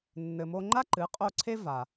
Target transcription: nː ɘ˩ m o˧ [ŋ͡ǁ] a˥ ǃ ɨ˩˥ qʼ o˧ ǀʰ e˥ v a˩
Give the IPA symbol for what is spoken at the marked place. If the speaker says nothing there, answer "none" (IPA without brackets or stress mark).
ŋ͡ǃ